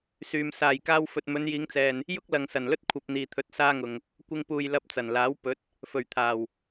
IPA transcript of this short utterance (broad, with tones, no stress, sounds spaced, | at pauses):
s yː˨ m s aː˨˩ j k aː˧ w f ɵ˨ t̚ m ɵ˨˧ n j iː˨˧ ŋ t͡s ɛː˨ n | j ʊ˥ k̚ l ɐ˨ ŋ s ɐ˨˩ n l ɵ˥ t̚ kʷʰ ɐ˧ p̚ n̪ iː˨ t̪ʰ ɵ˨˥ t̚ s aː˥ ŋ ʊ˨ ŋ | kʷ ɪ˧ ŋ p uː˨ j l ɐ˧ p̚ t͡s ɐ˨˩ n l aː˨˥ w p ɵ˨˥ t̚ | f ɵ˨˩ ɥ t̪ʰ aː˨˩ w